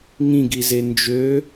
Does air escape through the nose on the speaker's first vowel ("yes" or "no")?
yes